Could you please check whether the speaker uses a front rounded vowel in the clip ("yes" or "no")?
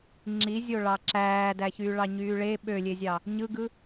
yes